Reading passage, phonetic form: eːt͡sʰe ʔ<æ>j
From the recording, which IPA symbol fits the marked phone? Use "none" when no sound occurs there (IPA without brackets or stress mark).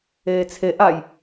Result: a